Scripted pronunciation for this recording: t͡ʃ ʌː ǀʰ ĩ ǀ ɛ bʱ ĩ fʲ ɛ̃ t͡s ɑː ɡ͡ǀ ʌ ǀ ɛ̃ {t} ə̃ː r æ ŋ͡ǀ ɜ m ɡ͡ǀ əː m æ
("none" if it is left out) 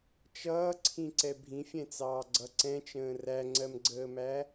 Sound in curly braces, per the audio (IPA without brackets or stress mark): t͡ʃ